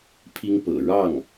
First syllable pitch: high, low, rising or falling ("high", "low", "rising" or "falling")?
high